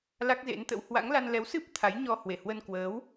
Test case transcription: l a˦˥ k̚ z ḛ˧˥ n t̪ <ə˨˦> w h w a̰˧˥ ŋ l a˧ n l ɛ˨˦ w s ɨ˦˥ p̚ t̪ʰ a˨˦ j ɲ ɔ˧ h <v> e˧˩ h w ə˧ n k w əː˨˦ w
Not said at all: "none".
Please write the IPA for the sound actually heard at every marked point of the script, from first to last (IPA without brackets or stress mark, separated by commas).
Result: ə̰˧˥, w